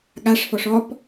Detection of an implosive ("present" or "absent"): present